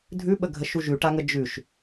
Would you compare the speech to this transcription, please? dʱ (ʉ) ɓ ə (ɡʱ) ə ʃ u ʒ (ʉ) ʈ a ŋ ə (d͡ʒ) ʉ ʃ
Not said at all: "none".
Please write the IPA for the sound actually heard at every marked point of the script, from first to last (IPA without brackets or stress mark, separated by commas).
ʉ, ɡʱ, ʉ, d͡ʒ